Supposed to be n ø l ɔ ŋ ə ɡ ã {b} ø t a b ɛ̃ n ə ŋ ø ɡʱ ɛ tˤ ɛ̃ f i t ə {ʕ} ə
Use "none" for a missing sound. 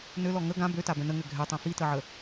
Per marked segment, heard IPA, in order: b, ʕ

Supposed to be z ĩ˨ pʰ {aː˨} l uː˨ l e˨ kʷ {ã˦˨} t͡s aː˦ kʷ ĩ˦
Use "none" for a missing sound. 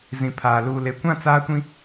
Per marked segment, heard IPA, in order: aː˨, ã˦˨

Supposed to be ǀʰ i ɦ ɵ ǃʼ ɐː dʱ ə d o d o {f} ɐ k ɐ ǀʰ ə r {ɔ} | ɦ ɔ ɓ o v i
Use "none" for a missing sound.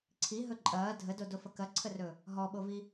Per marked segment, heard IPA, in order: f, ɵ

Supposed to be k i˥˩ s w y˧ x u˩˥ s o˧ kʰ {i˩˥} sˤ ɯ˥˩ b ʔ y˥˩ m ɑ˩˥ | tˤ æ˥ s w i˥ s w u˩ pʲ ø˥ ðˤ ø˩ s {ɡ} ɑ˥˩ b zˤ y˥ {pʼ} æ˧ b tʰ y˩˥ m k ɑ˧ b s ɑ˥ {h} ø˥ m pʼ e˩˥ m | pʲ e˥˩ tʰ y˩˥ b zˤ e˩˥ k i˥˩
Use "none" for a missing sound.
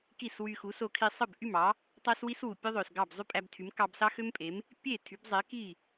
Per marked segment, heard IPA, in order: i˧, ɡ, pʼ, x

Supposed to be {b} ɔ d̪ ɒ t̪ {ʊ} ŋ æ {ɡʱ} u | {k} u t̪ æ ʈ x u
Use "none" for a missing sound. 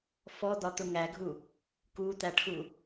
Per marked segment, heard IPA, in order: f, ʊ, ɡʱ, k

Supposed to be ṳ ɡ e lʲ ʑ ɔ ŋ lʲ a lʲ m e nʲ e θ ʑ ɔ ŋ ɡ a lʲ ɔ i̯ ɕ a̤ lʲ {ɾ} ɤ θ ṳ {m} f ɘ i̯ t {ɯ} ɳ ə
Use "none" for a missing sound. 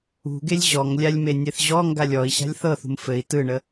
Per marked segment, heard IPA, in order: θ, m, ɯ

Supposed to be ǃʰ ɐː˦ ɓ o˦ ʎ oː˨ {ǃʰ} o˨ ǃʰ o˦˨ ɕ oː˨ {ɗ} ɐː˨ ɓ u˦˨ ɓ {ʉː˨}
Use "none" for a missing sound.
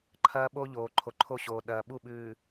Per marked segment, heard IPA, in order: ǃʰ, ɗ, ʉː˨

